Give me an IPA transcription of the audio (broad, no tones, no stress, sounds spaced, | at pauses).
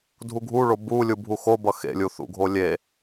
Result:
dʱ u ɡʱ u ɭ o b u lʲ u bʱ u x o b ʌ x ḛ lʲ u θ ṵ ɡʱ o lʲ e